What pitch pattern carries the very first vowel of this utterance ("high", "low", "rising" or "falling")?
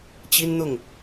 high